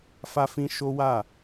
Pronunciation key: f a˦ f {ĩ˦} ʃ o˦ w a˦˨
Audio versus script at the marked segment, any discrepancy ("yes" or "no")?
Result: no